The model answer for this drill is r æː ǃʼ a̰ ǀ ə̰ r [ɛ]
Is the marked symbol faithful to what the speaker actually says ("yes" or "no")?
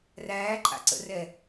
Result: yes